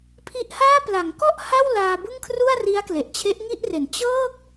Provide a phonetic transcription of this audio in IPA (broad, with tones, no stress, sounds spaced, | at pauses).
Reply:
pʰ i˦˥ ʔ h aː˥˩ p l a˩˦ ŋ k ɔ˥˩ ʔ h a˥˩ w l aː˧ b ɯ˥˩ ŋ kʰ r u˥˩ a̯ r i˦˥ a̯ k l e˨˩ ʔ t͡ɕʰ e˦˥ ʔ ŋ i˥˩ ʔ r e˩˦ n t͡ɕ ɤː˥˩ k̚